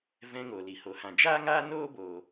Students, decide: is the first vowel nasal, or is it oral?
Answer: nasal